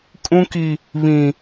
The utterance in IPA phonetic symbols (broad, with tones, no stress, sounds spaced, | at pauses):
kʼ ũ˦ k i˦ | β ĩ˦